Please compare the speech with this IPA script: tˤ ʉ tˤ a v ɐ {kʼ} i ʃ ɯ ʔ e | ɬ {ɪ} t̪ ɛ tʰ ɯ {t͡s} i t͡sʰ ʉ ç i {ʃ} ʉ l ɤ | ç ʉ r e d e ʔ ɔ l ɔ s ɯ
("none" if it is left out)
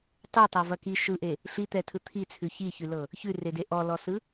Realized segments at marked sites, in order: k, i, t̪ʰ, ç

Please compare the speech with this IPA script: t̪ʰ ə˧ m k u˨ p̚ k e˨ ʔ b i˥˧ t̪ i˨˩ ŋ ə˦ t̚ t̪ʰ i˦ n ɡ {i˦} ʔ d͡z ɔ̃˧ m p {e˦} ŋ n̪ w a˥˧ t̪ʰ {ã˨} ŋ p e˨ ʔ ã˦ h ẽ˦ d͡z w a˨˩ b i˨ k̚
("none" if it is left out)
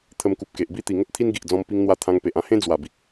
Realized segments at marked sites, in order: i˨, i˦, ã˧

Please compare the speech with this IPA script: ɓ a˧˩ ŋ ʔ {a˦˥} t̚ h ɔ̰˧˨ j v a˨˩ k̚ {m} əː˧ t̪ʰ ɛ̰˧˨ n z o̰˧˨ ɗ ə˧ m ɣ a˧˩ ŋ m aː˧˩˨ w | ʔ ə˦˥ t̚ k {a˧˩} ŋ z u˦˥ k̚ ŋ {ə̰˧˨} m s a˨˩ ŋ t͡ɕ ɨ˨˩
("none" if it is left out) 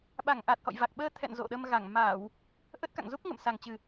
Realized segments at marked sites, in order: a˨˩, ɓ, a̰˧˨, ə̰˧˨

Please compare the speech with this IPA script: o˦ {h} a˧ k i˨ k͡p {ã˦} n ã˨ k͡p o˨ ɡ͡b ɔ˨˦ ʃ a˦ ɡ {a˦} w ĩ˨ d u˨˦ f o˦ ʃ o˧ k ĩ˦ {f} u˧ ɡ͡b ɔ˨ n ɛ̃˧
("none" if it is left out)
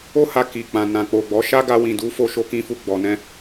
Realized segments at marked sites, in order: h, ã˨, a˧, f

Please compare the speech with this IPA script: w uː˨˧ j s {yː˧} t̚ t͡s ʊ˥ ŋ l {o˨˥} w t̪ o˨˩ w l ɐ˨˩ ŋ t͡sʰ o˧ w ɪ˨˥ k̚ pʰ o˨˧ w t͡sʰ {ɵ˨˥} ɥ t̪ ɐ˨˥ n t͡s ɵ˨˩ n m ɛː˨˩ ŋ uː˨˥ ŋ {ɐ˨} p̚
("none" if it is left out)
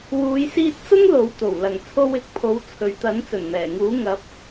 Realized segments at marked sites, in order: iː˧, o˨˥, ɵ˨, ɐ˨˥

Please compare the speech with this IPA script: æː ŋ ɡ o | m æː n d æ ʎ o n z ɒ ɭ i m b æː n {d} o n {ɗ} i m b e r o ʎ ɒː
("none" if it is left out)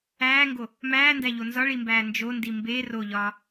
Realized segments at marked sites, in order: d͡ʒ, d

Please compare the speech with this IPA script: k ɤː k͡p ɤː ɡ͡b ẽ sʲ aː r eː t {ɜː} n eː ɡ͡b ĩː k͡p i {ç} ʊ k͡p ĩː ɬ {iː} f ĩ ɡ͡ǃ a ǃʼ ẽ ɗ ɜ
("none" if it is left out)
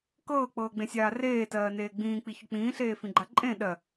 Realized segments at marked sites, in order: ɜː, ç, eː

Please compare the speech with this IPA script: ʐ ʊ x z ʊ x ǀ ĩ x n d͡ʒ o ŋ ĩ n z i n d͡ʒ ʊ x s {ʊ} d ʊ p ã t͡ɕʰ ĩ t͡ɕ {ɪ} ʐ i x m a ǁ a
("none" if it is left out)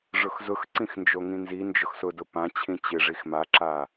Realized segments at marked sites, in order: ʊ, ɪ

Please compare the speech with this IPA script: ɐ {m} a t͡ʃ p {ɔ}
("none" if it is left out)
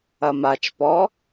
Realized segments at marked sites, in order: m, ɔ

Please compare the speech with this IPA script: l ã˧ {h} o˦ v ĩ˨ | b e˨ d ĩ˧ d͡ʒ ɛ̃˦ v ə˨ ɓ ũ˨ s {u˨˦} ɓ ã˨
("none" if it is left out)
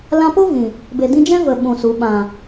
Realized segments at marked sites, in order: p, u˨˦

